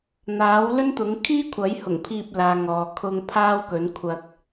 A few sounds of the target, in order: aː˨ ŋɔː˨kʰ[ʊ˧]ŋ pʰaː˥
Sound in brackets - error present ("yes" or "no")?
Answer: no